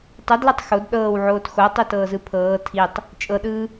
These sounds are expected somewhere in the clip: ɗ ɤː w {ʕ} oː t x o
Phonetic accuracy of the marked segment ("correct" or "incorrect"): correct